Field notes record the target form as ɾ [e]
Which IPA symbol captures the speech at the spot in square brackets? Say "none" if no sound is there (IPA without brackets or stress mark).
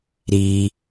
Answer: i